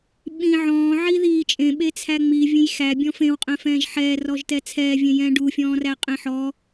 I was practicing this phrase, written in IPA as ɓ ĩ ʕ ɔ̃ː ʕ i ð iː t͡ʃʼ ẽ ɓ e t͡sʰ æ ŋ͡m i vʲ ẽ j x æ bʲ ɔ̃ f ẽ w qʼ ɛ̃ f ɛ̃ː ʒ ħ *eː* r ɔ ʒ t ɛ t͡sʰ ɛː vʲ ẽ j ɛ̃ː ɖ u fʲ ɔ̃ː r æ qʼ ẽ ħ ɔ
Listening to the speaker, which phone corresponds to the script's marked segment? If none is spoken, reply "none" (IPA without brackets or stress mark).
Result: ɛː